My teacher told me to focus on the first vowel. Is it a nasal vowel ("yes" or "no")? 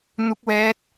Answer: no